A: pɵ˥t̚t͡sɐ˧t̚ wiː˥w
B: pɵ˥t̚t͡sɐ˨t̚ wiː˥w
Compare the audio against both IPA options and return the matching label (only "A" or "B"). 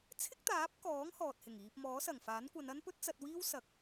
A